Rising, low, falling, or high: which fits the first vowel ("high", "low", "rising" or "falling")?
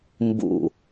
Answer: low